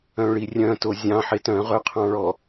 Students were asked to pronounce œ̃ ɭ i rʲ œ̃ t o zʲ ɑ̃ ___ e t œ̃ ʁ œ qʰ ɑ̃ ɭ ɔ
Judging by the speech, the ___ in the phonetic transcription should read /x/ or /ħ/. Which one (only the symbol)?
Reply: ħ